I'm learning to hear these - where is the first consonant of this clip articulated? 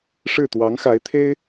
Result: retroflex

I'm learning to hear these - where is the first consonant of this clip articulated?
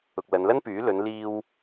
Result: velum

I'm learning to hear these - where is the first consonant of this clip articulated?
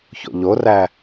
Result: palate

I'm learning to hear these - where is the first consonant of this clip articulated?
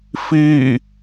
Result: lips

